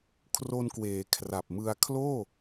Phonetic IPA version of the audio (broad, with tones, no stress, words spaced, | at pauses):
kʰro˧nkweː˩˦kʰra˨˩p̚mɯ˧a̯ kʰloː˥˩